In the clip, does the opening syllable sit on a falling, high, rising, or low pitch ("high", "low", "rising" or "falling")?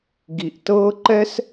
low